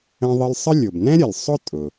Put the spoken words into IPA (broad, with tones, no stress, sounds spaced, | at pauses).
ə̃˧ ðˤ ə˧ l sˤ ə˥ lʲ ʊ˩ b n ɛ̃˥ ɾʲ ə˩ lʲ sˤ ʊ˥ tʼ ʊ˩